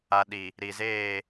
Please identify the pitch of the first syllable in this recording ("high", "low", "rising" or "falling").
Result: low